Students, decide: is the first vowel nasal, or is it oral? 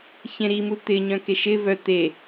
nasal